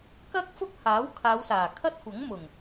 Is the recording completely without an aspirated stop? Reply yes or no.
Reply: no